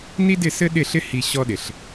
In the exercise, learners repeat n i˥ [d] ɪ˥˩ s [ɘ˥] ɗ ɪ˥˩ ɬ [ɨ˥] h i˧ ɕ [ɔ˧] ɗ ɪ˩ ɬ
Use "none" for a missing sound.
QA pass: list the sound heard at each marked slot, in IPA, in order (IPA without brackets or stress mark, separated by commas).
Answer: d, ɘ˥, ɪ˥, ɔ˧